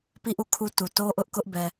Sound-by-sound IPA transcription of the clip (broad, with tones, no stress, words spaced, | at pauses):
pi˦˨ʔu˦˨ kʰu˦tu˨ to˦ʔʊ˦ʔkʊ˦ʔ bɛ˨